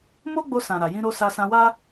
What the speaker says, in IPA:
m o˦ ɡ͡b o˧ s ã˨ ɾ a˨ j ĩ˧ ɾ o˧ s a˧ s ã˧ w a˦

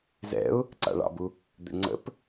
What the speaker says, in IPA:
z ɛ̰ ʊ̯ | ǀ a̰ ɭ ɑ̰ b u | d̪ ɛ̰ ŋ͡ǀ ə̰ p

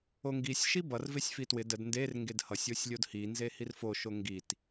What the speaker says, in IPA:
o ŋ ɡ i sʲ ʃ i b ʌ r v e sʲ f i t w ɪ d ə d n d e r ŋ ɡ e d h ʌ sʲ o sʲ lʲ o d h i n z e h i r f o ʃ o ŋ ɡ i t

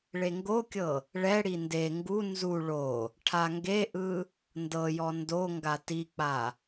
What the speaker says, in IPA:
ɭ e ŋ ɡ o kʲ ɤ | ɭ ɛ ɽ i n d e ŋ ɡ u n z u ɭ o | ʈʰ a ŋ ɡ e ʔ ɯ | n d ɤ j ɔ n d o ŋ ɡ a t i k͡p a

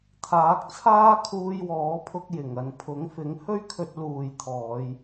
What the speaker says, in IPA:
t̪ʰ aː˨˥ k̚ t͡sʰ aː˥ kʰ uː˧ j w ɔː˨˥ pʰ ʊ˧ k̚ j ɪ˨˩ ŋ ɐ˨ n pʰ ʊ˨˥ ŋ f ɪ˨˥ ŋ h ɵ˥ ɥ kʰ ɵ˧ t̚ l uː˨ j t̪ʰ ɔː˨˧ j

